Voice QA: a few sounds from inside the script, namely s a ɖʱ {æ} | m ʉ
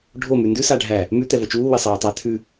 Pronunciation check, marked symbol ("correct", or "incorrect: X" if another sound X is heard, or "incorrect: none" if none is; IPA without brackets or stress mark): correct